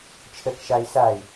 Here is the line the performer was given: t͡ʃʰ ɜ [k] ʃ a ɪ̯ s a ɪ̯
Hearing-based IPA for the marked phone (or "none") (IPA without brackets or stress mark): k